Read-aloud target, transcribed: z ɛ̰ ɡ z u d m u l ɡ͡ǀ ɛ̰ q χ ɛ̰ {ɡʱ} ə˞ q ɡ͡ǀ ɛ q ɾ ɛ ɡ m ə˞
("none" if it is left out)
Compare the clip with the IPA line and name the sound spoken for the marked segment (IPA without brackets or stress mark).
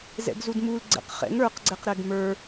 ŋ